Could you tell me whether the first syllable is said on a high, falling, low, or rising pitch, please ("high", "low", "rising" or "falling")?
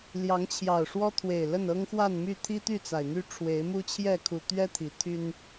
rising